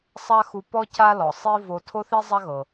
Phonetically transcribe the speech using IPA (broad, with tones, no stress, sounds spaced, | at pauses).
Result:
sˤ a˥ x u˧ p ɔ˥ c a˥ l ɔ˩ sˤ i˥ v o˧ tʰ o˥ θ i˥ zˤ a˥ ɣ ɤ˩